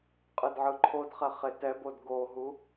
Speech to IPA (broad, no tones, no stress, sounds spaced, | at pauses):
qʼ ɯ d ʕ ɯ ǃʰ o d χ ɛ χ e t ɛ b o d ɡ o ɦ u